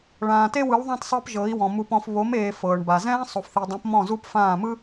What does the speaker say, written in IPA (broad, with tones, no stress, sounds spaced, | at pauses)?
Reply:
ɭ ãː˨ t e˦ w ɯ˨˦ w ðˤ ã˦ t sˤ ɤ˦ p ʒ ɤ˨˦ i̯ w ɔ̃˨ m u˨ p ɔ̃˨ f β o˨˦ m eː˨ f ɤː˨ ɳ b a˨ z ɛ̃ː˦ sˤ o˨ f θ i˨ dˤ õ˨˦ p m ɔ̃˦˨ z u˦ p f ãː˦˨ m ɯ˦